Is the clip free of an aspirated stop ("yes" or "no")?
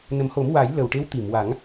yes